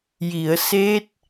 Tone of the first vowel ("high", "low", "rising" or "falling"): low